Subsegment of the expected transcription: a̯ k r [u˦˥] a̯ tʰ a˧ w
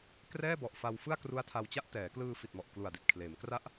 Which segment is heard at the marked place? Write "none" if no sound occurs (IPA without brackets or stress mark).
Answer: u˦˥